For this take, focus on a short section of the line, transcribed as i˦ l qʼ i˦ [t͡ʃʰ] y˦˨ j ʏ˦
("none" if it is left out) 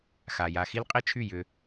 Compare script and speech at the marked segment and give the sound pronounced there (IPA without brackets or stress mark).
t͡ʃʰ